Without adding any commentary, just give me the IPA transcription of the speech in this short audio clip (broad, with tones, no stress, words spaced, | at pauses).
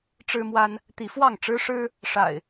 ʈ͡ʂɻ̩˦mwa˦n | t̪i˨˦ fwɑ˥˨ŋ ʈ͡ʂɻ̩˦ʂɻ̩˦ | ʂa̰˨˩ɪ̯